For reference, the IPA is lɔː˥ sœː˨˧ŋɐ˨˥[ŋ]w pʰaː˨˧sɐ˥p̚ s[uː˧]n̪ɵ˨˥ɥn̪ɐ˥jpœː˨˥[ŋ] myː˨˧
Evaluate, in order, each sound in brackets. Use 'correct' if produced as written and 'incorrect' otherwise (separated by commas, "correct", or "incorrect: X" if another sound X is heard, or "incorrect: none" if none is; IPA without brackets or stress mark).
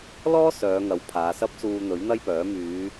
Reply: incorrect: none, correct, incorrect: none